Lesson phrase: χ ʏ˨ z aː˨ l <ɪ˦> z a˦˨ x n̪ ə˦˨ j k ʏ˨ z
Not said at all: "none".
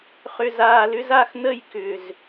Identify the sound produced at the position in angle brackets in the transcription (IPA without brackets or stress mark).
ʏ˦